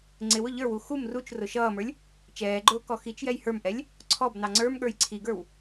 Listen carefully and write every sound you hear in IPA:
ŋ͡ǀ ɪ w ʊ ʎ ə˞ w u x u m r u t͡ʃ r ʊ ʃ ʌː m ə˞ lʲ | t͡ʃ ɛː ɡ͡ǃ ʊː k ɔ x i t͡ʃ j ɛ j h ə˞ m ʔ ɛ lʲ | ǀʰ ɔ b n ɑ ŋ͡ǀ ə˞ m ɠ ə˞ j ǀʰ i ɡ ə˞ w

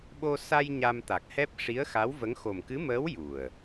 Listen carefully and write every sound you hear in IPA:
ɓ o˧ s a˧ j ɲ a˧ m t̪ a˨˩ k̚ h ɛ˦˥ p̚ ʂ i˧˥ ə̯ x a˧˥ w v ə˧˥ ŋ x o˨˩ m k ɨ˧˥ m əː˧˥ w j u˨˩ ə̯

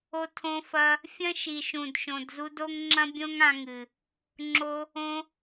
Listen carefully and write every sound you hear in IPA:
o˧ tʰ õ˧ f ɐ˧ | fʲ ɐ̃˦ ʃ i˨ ʃ ũ˨ d ʃ õ˨ d z u˧ d o˦ ŋ ŋ͡ǁ ɐ̃˦ bʲ õ˦ ŋ ã˧ ŋ ɨ˨ | ŋ͡ǁ o˧ | õ˧

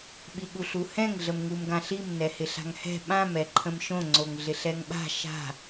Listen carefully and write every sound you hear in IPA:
ɓ i ɠ u ɬ u h ɛ̃ ŋ ɮ ə m ŋ u m ɡ ã ɬ i m n ɛ h ɪ ɬ a̤ ŋ h ɛ̤ ɓ ã m ɛ ǃʰ ə̃ m ʃ õ ŋ͡ǀ o ŋ ɮ ɪ ɬ ɛ ŋ ɓ a̤ ʃ a̤

